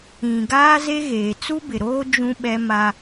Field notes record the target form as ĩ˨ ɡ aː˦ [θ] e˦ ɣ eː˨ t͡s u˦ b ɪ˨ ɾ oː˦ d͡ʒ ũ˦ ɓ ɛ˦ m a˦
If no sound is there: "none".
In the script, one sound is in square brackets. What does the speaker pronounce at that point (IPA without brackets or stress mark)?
z